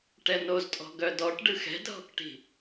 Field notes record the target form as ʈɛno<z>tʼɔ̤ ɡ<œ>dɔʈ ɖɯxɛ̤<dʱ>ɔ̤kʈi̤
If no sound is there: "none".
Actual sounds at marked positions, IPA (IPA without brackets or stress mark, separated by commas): z, œ, dʱ